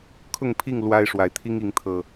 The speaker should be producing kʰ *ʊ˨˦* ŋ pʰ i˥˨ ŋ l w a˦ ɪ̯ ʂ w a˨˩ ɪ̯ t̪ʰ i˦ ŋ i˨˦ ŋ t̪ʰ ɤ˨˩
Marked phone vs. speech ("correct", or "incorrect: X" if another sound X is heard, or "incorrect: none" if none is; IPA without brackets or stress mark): incorrect: ʊ˥˨